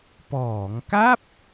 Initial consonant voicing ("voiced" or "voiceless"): voiceless